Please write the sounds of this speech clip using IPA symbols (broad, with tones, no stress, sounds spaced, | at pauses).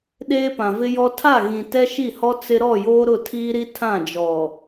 ɗ eː˦ p ã˨ v ɪ˦ j ɔ˦ tʰ a˦˨ ɣ ĩ˨ t ɛ˦ ʃ i˦˨ h ɔ˦ t͡s ɪ˦ ɾ ɔ˦˨ j oː˦ ɾ ʊ˦˨ tʰ iː˦ ɾ i˦ tʰ ã˦˨ d͡ʒ ɔ˨